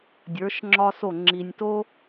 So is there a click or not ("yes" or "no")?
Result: yes